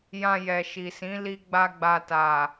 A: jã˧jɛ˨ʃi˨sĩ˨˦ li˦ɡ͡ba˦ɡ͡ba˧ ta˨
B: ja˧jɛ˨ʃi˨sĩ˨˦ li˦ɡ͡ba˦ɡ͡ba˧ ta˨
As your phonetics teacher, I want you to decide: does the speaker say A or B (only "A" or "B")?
A